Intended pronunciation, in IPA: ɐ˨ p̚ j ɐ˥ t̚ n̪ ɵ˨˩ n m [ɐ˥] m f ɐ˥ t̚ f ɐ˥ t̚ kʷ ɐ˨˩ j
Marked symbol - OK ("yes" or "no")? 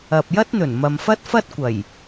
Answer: no